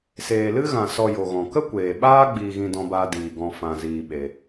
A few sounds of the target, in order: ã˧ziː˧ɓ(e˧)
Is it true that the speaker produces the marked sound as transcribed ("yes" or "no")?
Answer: yes